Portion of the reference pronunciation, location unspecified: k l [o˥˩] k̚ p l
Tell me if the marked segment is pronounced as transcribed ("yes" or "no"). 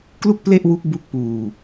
no